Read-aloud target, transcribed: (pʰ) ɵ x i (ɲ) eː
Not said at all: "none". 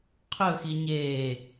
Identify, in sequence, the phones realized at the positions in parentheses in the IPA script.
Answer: qʰ, ɲ

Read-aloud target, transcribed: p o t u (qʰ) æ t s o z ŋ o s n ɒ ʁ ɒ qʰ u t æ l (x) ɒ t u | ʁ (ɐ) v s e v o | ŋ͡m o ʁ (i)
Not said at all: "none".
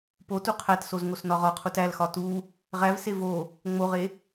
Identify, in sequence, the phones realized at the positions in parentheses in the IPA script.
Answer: qʰ, x, æ, e

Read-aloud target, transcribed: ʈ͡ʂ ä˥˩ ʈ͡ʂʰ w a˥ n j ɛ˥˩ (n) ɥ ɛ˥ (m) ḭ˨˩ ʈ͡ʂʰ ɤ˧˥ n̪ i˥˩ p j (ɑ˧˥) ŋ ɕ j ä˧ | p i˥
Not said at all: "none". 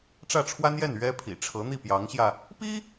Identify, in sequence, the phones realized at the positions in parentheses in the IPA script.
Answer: n, pʰ, ɑ˧˥

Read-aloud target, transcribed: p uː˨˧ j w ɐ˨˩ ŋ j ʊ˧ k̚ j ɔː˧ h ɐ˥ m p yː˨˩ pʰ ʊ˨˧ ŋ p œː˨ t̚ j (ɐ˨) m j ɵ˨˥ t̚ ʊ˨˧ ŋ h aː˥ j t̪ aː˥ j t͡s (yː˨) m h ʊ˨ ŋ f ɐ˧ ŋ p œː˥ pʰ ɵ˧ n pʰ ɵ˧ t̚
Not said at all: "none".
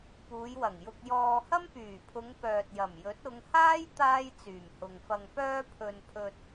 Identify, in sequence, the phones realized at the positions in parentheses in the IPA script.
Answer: ɐ˨˩, yː˨˩

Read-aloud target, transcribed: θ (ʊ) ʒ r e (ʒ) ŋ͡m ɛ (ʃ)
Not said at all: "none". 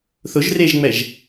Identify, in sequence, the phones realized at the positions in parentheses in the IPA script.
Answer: ʊ, ʒ, ʒ

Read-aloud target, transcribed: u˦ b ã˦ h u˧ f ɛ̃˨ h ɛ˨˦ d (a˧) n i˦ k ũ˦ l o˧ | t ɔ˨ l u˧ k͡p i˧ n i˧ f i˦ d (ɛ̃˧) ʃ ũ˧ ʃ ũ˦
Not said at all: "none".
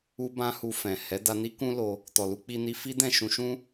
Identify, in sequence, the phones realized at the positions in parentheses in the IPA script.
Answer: a˧, ɛ̃˦˨

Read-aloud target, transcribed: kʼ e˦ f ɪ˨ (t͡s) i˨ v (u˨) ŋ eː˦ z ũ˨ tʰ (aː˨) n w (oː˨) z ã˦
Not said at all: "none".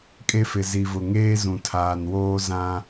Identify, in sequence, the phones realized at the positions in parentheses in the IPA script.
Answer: z, ʊ˨, aː˨, oː˦

